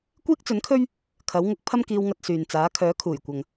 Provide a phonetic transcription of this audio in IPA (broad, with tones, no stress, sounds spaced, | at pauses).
kʷ iː˥ k̚ t͡s ɵ˨˥ n kʰ ɵ˥ ɥ | kʰ ɐ˨˥ w ŋ ʊ˨˥ k̚ pʰ ɐ˥ m k iː˧ w ŋ ɐ˧ t̚ s yː˨ n t͡s aː˨˥ kʰ œː˨˥ kʰ uː˨˩ j kʷ ɐ˨ ŋ